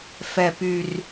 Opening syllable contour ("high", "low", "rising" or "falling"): falling